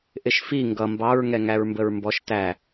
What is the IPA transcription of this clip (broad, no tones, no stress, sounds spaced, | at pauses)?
ʔ ɪ ʃ f i ŋ ɡ ʌ m b ɑ ɹ ŋ ɛ ŋ æ ɹ m b ə ɹ m b ɔ ʃ t æ